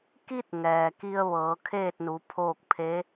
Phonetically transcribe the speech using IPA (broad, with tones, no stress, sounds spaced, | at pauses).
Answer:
k i˧ t̚ ŋ ɛː˩ k i˧ ə̯ ʋ ɤː˩˧ kʰ eː˥˨ t̚ n u˩˧ pʰ oː˥˨ k̚ pʰ e˧˥